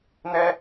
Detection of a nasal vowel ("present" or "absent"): absent